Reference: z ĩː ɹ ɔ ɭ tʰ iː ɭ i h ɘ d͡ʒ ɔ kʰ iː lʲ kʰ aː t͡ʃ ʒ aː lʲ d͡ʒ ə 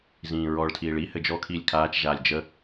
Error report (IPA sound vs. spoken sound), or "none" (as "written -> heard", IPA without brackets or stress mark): none